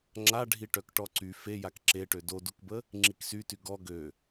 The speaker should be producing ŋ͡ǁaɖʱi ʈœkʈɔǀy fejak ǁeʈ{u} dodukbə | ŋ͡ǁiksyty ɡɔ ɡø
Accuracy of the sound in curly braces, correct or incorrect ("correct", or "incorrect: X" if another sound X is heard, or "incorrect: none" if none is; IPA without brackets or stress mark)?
incorrect: ø